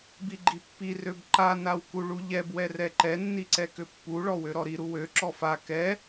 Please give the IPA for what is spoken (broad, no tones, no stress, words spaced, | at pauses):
biɡ͡ǃipːi røbǃa nawkuɭuʎɛb wɛrɛǃɛ nːiǀɛkøpːu ɭɔwøɾɔɾi ɾuwø ǁɔfa kɛ